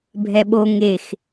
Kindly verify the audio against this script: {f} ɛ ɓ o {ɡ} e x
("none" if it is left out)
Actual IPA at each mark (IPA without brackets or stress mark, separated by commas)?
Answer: bʱ, ŋ